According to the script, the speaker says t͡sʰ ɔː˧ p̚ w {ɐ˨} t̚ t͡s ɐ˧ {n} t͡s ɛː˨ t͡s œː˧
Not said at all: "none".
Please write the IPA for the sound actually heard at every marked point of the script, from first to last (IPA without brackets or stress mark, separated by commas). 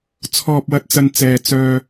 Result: ɐ˧, n